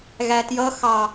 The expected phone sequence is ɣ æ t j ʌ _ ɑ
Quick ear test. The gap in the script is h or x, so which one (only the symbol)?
x